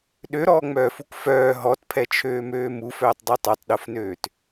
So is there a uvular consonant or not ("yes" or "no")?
no